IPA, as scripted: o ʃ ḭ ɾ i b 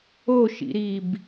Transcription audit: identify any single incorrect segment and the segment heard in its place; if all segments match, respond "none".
none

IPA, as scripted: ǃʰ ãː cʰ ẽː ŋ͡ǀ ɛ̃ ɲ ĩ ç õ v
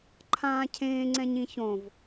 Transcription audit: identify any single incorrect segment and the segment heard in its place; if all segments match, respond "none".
none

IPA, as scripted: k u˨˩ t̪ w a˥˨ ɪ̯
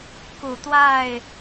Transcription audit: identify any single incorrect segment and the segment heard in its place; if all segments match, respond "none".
none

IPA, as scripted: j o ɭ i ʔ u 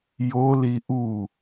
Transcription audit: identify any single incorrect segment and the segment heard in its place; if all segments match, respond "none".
ɭ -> l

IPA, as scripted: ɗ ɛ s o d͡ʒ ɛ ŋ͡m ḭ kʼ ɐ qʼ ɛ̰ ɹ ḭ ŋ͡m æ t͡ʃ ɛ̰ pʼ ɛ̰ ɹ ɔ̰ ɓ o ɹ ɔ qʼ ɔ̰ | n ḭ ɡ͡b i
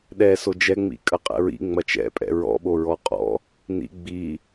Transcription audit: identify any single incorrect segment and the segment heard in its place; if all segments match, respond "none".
æ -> ɐ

